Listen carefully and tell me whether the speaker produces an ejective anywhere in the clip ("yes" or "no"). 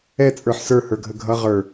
yes